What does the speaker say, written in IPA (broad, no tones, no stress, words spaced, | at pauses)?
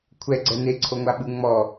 kʷʰɛɡ͡ǀɛ neǀʰo ŋʷaɓɯŋ͡mɔ